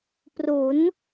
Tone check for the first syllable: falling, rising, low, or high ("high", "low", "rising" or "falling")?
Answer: rising